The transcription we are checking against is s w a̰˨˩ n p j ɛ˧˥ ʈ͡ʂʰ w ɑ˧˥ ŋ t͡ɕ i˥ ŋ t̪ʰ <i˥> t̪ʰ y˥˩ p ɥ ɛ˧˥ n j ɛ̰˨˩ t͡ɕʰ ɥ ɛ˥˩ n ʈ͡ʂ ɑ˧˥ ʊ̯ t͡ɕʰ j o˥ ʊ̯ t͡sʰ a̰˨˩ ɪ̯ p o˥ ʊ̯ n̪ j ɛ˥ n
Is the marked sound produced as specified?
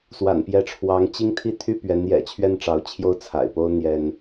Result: yes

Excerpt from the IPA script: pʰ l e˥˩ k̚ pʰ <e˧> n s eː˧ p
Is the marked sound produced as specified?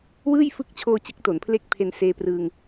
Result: yes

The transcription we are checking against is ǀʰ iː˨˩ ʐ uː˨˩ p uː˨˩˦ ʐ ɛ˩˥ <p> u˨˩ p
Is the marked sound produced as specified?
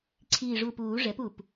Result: yes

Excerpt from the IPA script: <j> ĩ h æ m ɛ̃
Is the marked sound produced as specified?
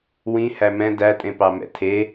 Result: no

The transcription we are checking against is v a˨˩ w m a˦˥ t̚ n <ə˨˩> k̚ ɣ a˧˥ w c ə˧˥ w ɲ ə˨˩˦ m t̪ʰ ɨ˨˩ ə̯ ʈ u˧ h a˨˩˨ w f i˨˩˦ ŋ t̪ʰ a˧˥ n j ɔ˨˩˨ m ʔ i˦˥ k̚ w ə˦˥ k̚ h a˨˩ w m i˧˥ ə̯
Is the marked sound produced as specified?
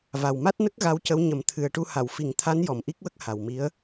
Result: no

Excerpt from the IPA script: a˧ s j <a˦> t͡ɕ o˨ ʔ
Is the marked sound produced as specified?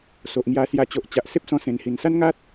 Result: no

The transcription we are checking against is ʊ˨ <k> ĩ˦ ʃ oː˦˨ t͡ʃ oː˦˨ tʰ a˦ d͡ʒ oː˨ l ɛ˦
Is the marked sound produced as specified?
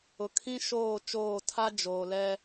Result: no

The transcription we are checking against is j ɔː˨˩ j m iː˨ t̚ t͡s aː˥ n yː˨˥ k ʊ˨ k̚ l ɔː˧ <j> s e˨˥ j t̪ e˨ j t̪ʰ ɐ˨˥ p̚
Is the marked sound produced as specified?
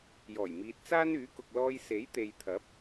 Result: yes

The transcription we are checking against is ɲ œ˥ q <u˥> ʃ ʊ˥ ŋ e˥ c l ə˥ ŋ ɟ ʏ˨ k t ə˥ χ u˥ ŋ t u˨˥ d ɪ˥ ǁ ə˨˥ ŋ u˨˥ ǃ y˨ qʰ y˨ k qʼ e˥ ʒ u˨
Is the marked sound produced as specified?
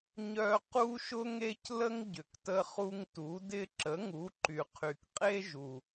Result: yes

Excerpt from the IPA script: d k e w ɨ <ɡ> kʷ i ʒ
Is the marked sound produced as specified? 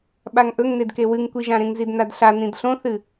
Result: no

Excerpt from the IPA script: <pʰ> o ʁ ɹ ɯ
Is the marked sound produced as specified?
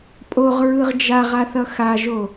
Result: no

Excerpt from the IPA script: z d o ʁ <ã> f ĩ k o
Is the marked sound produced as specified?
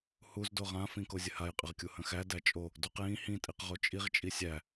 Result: yes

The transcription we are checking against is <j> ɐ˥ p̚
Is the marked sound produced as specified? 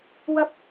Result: no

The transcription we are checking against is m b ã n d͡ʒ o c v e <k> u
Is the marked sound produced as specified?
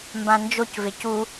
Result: no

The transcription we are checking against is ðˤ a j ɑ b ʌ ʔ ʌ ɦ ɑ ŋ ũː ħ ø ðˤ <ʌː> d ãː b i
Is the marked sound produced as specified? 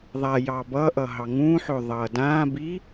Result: yes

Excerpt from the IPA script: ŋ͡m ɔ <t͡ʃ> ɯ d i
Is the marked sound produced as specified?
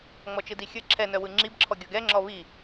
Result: yes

